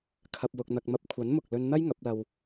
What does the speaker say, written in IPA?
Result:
kʰ ɐ˧ p̚ w ʊ˧ k̚ n̪ ɐ˧ k̚ m ɐ˥ p̚ kʷʰ ɐ˨˥ n m ʊ˨ k̚ l ɵ˧ n n̪ ɐ˥ j ŋ ɐ˨˥ p̚ l ɐ˧ w

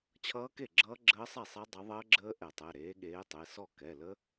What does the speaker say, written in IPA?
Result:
t͡ɕʰ ʌː˦˥ k e˥˩ ɡ͡ǁ ʌː˦˥ ɡ͡ǁ əː˦˥ sˤ ɛ˥˩ sˤ ɛ˦˥ dˤ ʌ˨˦ ðˤ əː˦˥ ɡ͡ǁ əː˦˥ ʔ ɛ˧˩˧ tˤ ɛ˩˧˩ ɾ eː˨˦ ɠ eː˨˦ tˤ e˩˧˩ s ɔ˥˩ k ɛ˩˧˩ l ə˦˥

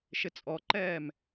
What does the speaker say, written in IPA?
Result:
ʃ ɪ t͡sʼ ɔ ǃ ɛː m

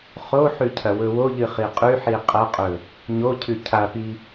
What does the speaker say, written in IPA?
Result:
χ o ħ ʉ cʰ ɐ w ɵ w o ʎ ɨ χ i qʼ ʉ ħ i qʼ ɐ qʼ ɵ | ɲ o cʰ ʉ cʰ a p i

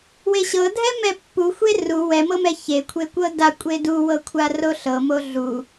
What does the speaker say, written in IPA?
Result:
w e ɕ ɤ dʱ ɛ m ɛ pː u xʷ e r u w ɛ m ɤ m ɛ ç e kʷʰ e kʷ ɤ d a kʷʼ e d u w ɤ kʷʰ a r o ɬ ɤ m o ɮ u

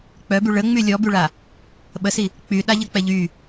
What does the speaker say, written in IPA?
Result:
k͡p œ b y ɭ ə ŋ͡m y lʲ ɔ b y ɭ a | ɓ ə s i | k͡p y ɗ a ʎ ə k͡p ɛ ʎ y

